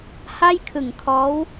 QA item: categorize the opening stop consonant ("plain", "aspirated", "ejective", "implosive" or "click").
aspirated